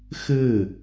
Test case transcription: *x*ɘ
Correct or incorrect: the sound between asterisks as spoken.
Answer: correct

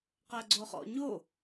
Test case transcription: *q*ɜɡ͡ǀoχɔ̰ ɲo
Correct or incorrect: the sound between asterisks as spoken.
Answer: correct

